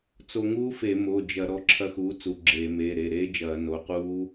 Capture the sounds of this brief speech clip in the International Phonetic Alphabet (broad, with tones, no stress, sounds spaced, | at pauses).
t͡s o˧ ŋ uː˦˥ f e˧˩˧ m o˩˧˩ d͡ʒ ɐ˧˩˧ ɾ ɔ˩˧˩ ǁʰ ɐ˧ x uː˩˥ t͡s u˩˧˩ ɡ͡ǁ eː˧˩˧ m eː˩˧˩ ɾ e˩˧˩ ɾ eː˦˥ d͡ʒ ɐː˧˩˧ n o˩˧˩ q uː˦˥